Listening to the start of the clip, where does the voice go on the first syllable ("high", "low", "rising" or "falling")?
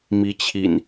rising